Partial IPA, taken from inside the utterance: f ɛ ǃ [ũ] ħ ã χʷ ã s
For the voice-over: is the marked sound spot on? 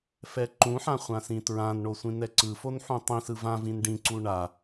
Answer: yes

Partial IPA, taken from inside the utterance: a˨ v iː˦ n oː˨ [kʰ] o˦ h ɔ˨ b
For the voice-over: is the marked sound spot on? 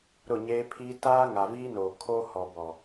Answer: yes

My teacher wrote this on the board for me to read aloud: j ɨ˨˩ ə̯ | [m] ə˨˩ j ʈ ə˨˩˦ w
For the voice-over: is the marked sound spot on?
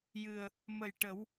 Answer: yes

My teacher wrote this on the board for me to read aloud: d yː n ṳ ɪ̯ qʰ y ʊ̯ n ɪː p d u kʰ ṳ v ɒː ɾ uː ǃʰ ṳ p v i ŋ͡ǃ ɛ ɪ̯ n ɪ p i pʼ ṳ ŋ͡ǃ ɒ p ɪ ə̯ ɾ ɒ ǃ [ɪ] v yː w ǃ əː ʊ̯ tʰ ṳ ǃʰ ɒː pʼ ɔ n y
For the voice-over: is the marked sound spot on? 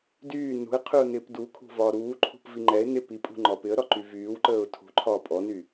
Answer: no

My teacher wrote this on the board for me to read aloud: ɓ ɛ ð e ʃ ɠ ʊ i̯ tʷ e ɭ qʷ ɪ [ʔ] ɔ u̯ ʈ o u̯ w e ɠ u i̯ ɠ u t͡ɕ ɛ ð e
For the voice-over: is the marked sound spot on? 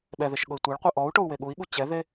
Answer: yes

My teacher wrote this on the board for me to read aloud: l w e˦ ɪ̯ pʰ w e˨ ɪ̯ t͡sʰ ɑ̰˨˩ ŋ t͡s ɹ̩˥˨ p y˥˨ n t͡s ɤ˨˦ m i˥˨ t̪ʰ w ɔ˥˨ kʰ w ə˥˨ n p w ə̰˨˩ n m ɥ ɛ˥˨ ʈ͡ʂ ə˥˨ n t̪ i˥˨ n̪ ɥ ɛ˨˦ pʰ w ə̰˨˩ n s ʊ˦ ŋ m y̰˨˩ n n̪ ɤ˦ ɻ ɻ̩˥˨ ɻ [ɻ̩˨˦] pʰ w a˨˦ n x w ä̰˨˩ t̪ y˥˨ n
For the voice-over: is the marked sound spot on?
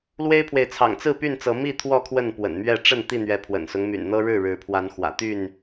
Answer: yes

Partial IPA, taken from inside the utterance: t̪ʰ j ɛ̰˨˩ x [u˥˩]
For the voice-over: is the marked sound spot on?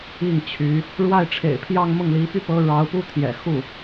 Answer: yes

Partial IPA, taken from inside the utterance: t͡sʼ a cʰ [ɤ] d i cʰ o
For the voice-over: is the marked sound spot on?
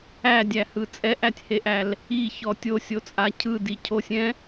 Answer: no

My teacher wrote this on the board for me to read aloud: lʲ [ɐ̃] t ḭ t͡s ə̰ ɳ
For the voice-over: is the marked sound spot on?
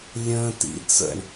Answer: no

